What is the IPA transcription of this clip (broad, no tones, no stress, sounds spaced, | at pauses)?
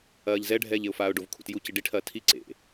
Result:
ɐː ʎ z ɛ ɖʱ ɛː ʎ e ʊ̯ f aː ʊ̯ ɖ o v kʰ ṵ t j u c i ɖ i ʈʰ ɐː tʰ i ǀ ḛ